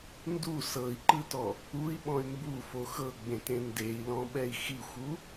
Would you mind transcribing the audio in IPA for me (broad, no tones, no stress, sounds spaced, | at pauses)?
n d u s ɤ i̯ ǃ ɯ t ɔ | u i̯ ɓ ɔ̃ y̯ m b u f o x ɤ ɡ͡b ẽ t ẽ n d e i̯ l ɔ̃ ɓ ɛ i̯ x i xʷ u